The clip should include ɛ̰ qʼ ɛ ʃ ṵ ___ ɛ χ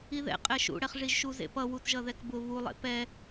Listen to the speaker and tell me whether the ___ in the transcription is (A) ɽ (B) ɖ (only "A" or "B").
A